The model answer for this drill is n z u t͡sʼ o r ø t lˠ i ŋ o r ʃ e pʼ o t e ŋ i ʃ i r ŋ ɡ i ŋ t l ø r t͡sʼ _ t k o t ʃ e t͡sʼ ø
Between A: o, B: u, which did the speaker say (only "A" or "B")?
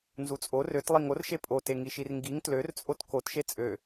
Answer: A